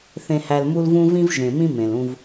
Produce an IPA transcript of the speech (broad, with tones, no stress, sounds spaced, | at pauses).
θ ẽ˨ h æ˨ l m u˦ l v ũ˦ v ĩ˦ v ʒ ẽ˨ m ĩ˦ m ẽ˨ l ũ˦ v